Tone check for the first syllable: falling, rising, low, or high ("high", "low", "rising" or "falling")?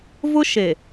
high